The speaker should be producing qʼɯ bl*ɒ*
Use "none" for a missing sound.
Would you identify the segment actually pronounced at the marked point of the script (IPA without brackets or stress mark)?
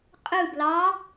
ɑ